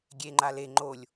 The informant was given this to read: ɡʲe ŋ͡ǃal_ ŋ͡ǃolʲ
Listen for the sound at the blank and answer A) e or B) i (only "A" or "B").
A